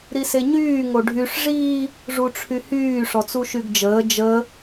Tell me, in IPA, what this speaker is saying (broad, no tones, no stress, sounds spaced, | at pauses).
ɾ i s e ɲ yː ŋ o ɖʱ y ʂ ʐ i | ʐ u ʈ͡ʂʰ y h yː ʂ ɔ t͡s u ʃ y ɡ d͡ʒ əː d͡ʒ ə